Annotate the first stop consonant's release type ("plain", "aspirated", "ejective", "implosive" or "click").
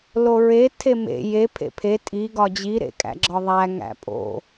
aspirated